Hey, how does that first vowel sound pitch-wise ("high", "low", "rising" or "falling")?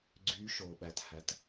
rising